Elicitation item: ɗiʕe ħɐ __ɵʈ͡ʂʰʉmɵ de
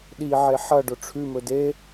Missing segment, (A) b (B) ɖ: B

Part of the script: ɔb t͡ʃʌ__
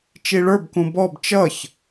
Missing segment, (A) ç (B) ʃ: A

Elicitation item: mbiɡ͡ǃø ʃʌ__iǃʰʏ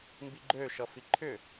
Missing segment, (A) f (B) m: A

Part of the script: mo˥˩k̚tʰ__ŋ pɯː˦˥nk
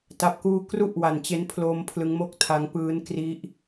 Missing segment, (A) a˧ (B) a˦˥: B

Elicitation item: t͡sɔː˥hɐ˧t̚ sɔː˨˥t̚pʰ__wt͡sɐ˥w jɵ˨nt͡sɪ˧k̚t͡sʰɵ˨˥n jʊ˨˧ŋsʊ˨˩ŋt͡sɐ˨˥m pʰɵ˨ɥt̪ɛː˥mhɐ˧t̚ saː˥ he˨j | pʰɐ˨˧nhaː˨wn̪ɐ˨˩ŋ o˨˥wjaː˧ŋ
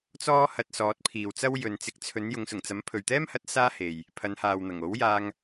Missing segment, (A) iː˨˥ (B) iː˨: B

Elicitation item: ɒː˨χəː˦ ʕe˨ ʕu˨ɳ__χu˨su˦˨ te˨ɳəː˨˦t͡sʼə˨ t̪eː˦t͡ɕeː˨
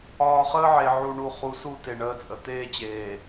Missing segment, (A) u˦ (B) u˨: B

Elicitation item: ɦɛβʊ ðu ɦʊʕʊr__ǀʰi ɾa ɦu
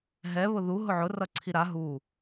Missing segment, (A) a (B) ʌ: B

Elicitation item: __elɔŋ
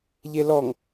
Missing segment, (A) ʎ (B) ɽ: A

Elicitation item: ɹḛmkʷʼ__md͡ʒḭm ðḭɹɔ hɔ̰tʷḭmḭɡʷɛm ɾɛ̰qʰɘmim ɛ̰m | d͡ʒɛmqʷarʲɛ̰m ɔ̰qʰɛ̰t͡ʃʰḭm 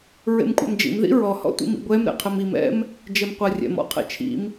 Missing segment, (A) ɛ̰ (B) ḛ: A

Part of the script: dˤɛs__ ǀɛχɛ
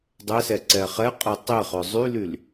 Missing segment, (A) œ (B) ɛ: B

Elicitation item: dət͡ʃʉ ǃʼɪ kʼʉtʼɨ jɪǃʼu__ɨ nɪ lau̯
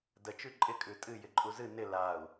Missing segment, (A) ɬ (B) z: B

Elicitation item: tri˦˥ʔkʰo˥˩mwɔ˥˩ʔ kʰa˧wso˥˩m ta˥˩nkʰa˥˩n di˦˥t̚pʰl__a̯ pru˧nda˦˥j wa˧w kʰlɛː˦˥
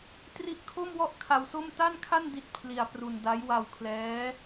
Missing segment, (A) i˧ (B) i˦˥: A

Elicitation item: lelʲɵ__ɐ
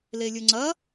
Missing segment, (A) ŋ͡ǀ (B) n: A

